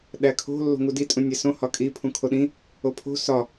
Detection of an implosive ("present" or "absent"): present